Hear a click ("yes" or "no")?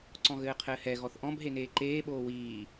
yes